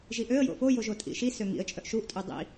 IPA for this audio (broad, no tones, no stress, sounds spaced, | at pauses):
ʒ i ʔ ø ə̯ j o̰ f o j o ʒ o tʼ ḭ ʃ i s ø ŋ ḭ ə̯ t͡ʃʼ œ ʔ ʃ u ʔ tʼ u dˤ ḭ